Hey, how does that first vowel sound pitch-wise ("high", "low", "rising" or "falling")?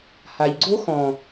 low